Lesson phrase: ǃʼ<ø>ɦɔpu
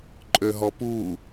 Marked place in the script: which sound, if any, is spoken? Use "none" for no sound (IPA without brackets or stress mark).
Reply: ø